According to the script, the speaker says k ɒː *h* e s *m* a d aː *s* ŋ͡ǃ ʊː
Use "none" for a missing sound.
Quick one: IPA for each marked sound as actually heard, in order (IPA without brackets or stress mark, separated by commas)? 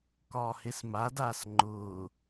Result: h, m, s